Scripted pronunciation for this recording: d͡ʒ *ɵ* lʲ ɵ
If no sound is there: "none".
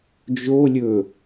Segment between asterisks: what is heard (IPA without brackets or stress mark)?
o